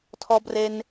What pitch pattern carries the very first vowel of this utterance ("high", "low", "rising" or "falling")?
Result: high